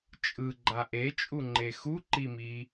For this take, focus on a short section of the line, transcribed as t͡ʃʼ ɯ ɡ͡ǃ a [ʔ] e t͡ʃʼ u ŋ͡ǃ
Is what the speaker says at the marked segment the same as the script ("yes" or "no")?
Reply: yes